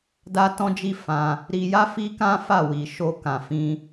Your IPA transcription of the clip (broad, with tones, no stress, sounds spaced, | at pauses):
d a˦ t ɔ̃˦ d͡ʒ i˦ f ã˧ | ɾ i˧ j a˦ f i˦ k ã˦ f a˦˨ w i˨ ʃ o˧ k ã˨ f ĩ˧